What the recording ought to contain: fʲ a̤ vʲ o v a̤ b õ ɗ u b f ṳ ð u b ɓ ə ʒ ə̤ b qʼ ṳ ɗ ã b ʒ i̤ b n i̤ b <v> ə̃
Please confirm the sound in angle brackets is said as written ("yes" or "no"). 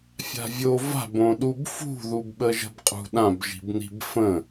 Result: no